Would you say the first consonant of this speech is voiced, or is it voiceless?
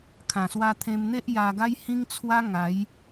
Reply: voiceless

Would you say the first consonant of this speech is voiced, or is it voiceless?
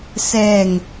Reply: voiceless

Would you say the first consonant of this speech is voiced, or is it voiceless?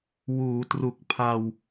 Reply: voiced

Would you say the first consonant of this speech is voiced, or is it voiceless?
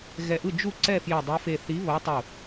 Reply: voiced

